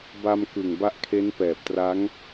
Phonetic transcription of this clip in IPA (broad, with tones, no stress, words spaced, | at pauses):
ba˧m kɯ˨˩ŋba˦˥ʔkʰe˦˥n pɛː˨˩p̚tra˦˥ŋ